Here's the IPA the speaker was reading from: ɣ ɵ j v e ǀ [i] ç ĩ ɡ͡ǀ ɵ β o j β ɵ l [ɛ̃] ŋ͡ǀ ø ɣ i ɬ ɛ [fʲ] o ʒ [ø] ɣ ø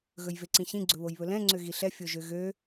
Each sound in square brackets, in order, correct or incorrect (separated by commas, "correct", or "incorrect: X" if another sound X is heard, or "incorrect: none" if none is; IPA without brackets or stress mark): incorrect: ĩ, correct, correct, correct